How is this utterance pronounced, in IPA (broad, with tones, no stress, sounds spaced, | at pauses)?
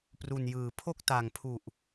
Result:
p r u˨˩ n j ɯː˩˦ pʰ o˥˩ k̚ t a˨˩ ŋ pʰ u˨˩ ʔ